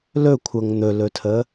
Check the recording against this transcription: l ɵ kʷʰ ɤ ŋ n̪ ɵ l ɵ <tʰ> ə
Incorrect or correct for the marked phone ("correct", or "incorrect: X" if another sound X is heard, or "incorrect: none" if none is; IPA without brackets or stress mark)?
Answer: correct